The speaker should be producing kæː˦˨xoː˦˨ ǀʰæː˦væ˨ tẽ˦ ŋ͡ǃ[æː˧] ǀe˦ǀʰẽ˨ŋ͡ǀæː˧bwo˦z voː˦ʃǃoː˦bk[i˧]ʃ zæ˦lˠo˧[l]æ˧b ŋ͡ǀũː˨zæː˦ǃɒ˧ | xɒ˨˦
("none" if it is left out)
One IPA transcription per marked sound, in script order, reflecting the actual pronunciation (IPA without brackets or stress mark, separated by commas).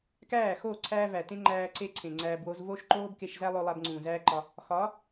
æː˧, e˧, lˠ